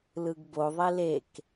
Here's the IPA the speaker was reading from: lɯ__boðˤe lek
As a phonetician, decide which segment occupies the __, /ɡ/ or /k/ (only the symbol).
ɡ